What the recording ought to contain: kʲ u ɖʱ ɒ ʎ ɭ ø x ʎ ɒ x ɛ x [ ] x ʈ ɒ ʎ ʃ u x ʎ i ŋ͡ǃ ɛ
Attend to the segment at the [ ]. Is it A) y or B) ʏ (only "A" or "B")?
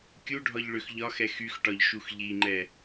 A